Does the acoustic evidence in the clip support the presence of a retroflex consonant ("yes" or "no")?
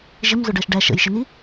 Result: yes